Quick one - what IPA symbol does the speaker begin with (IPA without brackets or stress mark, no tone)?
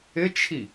ɪ